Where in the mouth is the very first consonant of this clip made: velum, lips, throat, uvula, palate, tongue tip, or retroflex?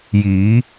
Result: palate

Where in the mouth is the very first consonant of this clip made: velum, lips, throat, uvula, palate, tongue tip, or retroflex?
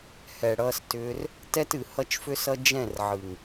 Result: throat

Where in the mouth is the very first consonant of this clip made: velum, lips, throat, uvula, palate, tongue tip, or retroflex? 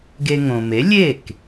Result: velum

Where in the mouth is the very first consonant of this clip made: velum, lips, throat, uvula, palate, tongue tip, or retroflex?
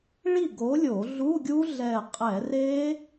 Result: retroflex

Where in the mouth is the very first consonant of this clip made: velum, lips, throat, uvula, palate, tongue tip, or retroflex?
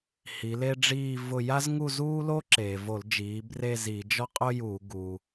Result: throat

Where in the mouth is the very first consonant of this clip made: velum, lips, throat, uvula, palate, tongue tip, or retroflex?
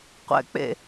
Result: uvula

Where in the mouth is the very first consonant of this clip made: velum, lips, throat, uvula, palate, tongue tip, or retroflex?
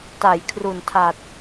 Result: tongue tip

